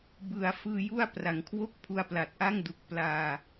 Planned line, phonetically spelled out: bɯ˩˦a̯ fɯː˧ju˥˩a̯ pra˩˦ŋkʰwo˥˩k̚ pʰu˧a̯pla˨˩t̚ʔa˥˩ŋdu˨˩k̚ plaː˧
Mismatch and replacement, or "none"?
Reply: none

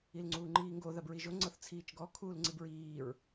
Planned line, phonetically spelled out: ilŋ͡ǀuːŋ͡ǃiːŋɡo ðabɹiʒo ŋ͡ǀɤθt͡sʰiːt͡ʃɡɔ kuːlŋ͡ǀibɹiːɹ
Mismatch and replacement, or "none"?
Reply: k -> kʰ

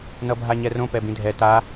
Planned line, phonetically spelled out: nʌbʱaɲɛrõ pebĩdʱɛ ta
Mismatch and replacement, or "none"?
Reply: e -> ɛ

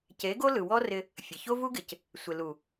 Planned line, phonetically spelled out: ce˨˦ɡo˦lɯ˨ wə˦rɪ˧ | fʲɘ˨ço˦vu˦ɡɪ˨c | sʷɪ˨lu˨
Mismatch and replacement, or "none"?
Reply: ə˦ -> ɔ˦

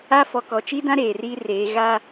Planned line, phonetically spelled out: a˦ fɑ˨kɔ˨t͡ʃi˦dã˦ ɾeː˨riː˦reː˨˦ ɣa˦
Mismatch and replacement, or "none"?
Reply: ɑ˨ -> ɔ˨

